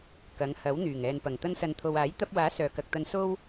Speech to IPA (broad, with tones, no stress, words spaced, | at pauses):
kɐ˨˧ŋhɐ˨˥wn̪yː˨˩ŋ ɛː˨npɐ˨˩ŋ t̪ɐ˧nsɐ˨nt̪ʰo˨waː˨˥j t̪ɐ˧p̚waː˨˥ sœː˨kɐ˨k̚t̪ɐ˧n so˥w